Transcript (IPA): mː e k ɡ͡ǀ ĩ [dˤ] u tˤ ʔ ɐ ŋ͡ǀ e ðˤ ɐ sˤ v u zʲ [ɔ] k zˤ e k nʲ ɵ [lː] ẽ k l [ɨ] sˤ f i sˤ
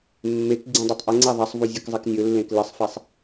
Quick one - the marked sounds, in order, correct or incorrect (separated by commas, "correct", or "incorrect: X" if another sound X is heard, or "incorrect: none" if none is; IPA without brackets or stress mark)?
correct, incorrect: ɵ, correct, correct